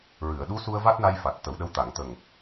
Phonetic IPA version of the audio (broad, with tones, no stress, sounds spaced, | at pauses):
ɹ ɨ˨˩˨ ə̯ ɗ u˧˥ s u˧ ə̯ v a˦˥ t̚ n a˧ j f a˨˩ t̚ t̪ ə˨˩˦ w ɗ ə˧˥ w t̪ a˨˩˨ ŋ t̪ ə˨˩ ŋ